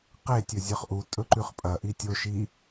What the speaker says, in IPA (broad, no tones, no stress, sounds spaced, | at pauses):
q e tʲ ɵ zʲ ɵ χ ʔ u tʼ ɵ ǃ ʉ χ pʼ ɐ ʔ i tʲ o ʃ i